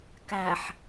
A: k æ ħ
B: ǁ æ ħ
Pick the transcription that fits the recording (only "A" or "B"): A